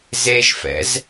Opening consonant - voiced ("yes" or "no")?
yes